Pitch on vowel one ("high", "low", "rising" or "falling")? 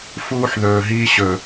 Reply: high